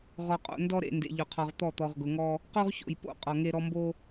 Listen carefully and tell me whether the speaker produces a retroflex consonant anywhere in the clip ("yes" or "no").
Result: no